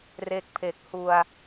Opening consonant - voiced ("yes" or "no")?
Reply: yes